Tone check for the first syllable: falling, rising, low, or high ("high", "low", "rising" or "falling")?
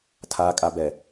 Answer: low